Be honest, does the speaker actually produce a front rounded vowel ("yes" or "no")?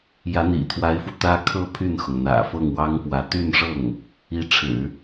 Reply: yes